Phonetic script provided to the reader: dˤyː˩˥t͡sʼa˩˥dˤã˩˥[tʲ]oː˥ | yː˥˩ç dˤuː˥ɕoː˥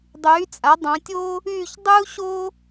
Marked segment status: correct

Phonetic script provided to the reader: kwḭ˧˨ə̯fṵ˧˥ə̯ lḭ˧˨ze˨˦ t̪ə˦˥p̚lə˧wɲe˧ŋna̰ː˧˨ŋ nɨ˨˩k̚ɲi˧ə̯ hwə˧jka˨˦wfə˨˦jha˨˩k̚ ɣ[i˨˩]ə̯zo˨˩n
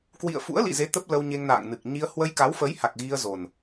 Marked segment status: incorrect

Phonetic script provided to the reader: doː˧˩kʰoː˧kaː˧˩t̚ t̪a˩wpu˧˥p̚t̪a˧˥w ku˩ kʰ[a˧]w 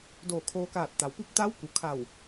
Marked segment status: incorrect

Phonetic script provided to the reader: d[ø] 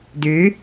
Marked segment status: correct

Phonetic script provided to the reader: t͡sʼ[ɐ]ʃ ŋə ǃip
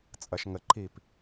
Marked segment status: correct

